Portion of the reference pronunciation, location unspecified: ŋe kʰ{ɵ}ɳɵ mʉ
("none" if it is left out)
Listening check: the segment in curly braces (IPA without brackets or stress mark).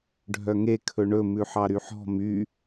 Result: ɵ